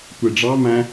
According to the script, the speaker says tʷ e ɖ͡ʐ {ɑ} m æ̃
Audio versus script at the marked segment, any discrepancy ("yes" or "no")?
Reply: no